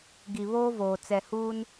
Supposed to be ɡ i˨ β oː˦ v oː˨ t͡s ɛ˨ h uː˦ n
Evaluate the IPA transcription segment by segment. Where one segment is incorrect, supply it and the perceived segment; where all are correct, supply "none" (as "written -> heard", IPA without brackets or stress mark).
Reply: none